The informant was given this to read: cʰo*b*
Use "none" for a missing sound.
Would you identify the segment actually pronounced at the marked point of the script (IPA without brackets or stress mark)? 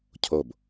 b